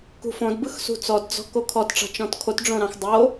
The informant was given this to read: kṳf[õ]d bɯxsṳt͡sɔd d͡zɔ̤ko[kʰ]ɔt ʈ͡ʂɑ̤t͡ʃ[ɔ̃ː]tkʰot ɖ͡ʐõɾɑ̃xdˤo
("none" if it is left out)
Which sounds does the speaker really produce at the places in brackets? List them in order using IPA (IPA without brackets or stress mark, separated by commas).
õ, kʰ, ɔ̃